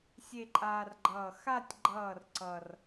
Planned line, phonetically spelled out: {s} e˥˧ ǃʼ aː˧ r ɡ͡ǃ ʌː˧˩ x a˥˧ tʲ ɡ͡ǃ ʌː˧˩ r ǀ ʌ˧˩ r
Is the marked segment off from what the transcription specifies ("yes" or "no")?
yes